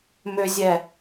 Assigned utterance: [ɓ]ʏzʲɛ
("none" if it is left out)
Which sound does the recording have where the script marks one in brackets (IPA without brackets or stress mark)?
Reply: m